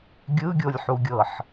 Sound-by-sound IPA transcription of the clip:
ɡʲ ɯ ɡʲ o lʲ ħ u ɡʲ ɤ ħ

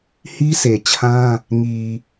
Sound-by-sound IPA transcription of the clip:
h i˦ s e˨ t͡ɕʰ ã˦ | ŋ i˨

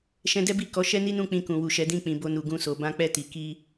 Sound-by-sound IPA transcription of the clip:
ʃ ɛ̃˧ d ɛ˦ b i˦˨ k ɔ˨˦ ʃ ɛ˦ n i˦ n ũ˦˨ k͡p ĩ˧ k ũ˨ w u˨ ʃ ɛ˨˦ d ĩ˦˨ k͡p ĩ˨ b o˧ n u˨ ɡ ũ˧ s o˨ b ã˧ k͡p ɛ˧ t i˨ k i˧

